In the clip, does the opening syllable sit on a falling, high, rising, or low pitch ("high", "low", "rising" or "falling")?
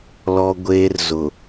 high